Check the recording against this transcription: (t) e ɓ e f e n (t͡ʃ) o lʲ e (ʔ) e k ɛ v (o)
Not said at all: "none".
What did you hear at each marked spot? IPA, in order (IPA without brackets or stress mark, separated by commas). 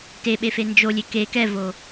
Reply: t, d͡ʒ, k, o